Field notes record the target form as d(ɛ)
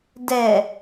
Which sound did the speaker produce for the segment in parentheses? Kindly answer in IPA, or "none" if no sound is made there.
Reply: ɛ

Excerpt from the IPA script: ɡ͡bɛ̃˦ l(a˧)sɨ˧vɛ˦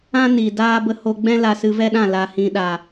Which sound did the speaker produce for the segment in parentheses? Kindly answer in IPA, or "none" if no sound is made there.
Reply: a˧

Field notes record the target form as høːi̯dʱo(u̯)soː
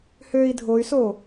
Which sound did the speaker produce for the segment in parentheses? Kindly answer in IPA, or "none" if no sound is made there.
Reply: y̯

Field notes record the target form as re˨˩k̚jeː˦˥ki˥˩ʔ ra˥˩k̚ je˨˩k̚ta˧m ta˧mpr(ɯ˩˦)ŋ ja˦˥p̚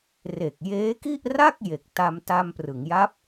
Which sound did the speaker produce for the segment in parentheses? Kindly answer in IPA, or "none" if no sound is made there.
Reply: ɯ˩˦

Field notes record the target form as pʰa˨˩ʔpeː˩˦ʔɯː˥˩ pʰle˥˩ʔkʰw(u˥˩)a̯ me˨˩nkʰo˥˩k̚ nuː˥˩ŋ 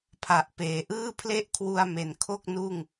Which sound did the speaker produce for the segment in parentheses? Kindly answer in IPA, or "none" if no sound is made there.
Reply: u˧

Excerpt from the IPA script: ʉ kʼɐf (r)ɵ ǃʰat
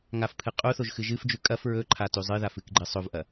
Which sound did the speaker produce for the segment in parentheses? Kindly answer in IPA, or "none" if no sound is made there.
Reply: ɹ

